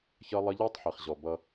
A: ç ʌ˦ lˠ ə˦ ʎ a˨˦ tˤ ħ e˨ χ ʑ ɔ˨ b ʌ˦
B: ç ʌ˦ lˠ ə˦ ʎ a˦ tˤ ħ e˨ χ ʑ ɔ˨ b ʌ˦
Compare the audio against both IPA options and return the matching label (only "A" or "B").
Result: B